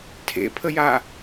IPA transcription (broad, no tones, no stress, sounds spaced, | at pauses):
tʰ ḛ pʰ ə j a